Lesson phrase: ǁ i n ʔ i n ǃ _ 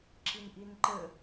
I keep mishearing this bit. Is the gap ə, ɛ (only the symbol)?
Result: ə